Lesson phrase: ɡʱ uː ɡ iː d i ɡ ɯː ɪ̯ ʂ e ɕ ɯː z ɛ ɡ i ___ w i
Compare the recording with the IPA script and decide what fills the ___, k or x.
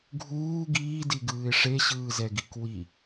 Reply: k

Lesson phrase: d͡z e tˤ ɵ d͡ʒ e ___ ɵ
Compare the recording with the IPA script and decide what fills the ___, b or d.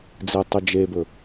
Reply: b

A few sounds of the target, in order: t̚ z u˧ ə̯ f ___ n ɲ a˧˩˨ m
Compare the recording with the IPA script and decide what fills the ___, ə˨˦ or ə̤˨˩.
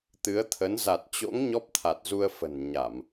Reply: ə̤˨˩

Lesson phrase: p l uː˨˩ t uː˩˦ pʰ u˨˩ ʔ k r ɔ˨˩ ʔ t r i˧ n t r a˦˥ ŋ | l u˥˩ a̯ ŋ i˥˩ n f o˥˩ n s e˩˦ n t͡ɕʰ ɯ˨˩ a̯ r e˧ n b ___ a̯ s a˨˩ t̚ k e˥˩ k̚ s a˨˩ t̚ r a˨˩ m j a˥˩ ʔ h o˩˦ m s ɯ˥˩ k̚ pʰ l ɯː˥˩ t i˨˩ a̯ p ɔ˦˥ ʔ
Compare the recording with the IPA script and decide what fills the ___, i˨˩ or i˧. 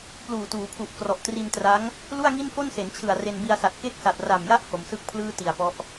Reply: i˧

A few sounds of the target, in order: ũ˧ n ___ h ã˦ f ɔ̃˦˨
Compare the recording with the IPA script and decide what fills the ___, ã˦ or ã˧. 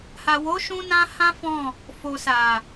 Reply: ã˧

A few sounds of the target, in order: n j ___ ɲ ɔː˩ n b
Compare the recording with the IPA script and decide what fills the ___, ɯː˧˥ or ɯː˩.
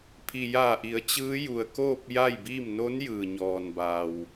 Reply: ɯː˩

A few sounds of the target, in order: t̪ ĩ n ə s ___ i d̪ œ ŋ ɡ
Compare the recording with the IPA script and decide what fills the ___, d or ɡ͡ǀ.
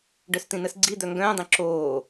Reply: ɡ͡ǀ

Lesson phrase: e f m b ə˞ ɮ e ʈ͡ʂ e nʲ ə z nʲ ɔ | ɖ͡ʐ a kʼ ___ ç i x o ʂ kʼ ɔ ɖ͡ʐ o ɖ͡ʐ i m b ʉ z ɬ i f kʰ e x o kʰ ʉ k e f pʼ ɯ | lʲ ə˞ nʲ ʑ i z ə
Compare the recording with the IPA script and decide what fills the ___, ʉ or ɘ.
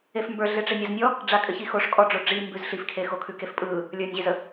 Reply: ɘ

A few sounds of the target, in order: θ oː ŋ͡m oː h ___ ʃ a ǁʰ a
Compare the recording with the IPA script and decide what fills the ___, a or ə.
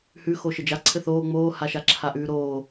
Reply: a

